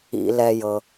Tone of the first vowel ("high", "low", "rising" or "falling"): low